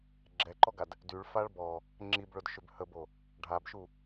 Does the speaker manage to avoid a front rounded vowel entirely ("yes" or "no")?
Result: no